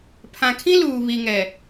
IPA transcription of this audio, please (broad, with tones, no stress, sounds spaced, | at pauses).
pʰ ã˨ kʰ ĩ˦ l uː˨ β i˨ ŋ ɛ˨